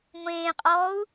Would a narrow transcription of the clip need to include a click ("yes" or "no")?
no